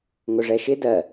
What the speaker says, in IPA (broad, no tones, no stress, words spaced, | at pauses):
ŋʊʐɛʃɪ dɜ